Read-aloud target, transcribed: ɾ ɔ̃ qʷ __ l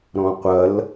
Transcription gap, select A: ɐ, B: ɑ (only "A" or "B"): A